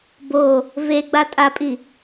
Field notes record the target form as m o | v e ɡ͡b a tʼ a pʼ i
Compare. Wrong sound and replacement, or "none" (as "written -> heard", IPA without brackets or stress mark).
m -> b